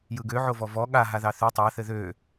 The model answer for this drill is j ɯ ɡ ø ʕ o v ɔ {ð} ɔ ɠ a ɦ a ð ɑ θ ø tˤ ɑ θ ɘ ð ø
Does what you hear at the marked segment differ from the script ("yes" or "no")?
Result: yes